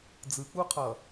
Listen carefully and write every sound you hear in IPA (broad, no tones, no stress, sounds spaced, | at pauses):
d͡z ɯ k͡p u qʰ ʌ